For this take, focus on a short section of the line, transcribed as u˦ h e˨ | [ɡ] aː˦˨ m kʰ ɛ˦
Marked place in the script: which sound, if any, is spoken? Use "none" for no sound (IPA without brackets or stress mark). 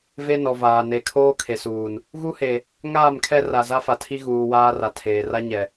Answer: ŋ